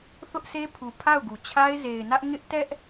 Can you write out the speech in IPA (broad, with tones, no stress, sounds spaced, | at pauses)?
θ ʊ˦ ʔ sʰ e˦ pʰ u˨ pʰ a˦˨ ʊ̯ ɡ u˨ t͡ɕʰ a˦ ɪ̯ z e˨ ɪ̯ n ä˦ ʔ ŋ ɪ˦ ʔ t ɛ˦ ʔ